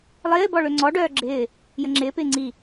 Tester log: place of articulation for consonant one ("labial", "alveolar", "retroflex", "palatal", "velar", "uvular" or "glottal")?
alveolar